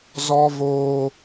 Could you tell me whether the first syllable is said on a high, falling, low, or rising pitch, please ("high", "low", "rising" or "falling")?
high